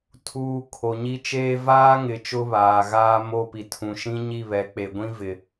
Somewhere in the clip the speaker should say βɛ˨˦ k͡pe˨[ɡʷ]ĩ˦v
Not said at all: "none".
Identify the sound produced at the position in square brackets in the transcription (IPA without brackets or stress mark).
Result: ɡʷ